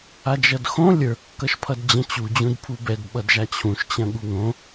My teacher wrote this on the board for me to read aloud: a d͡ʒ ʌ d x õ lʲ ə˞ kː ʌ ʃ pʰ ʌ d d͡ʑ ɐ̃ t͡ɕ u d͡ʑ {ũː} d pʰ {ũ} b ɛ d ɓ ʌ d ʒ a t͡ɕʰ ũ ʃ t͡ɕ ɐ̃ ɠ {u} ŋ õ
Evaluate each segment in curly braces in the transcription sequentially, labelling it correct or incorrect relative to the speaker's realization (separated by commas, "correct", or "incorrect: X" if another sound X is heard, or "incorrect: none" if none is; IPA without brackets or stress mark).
incorrect: ũ, incorrect: u, correct